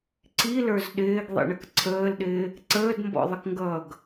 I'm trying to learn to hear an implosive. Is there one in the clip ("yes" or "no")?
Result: yes